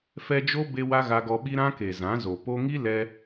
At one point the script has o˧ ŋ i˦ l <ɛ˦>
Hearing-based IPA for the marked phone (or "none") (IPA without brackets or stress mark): ɛ˦